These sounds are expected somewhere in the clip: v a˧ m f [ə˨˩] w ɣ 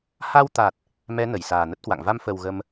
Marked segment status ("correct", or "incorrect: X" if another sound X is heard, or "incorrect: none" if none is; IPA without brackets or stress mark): correct